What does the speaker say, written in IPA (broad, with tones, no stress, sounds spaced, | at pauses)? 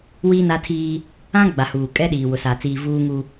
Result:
w iː˦ n a˦ tʰ iː˦ | ã˦ ɡ͡b a˨ h uː˨ kʼ ɛ˦ ɗ iː˨ w ʊ˨ s a˨ t͡s iː˨ v uː˦ ŋ u˦